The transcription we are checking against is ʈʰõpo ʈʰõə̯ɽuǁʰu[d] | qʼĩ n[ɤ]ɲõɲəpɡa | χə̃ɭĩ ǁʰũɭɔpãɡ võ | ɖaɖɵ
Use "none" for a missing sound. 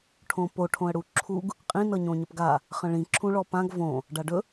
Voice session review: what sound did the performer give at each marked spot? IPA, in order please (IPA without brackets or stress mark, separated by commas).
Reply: ɡ, ɤ